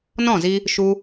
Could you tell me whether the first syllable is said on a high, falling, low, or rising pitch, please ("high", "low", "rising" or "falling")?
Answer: falling